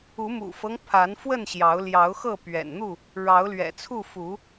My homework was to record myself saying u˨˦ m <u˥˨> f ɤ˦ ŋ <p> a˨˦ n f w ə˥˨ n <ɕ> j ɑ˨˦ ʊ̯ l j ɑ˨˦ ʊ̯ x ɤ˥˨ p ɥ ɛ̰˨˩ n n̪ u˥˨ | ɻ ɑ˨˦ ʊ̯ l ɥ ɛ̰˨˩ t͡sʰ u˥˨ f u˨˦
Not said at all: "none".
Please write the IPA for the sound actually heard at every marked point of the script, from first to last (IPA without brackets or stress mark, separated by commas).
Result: ṵ˨˩, pʰ, ɕ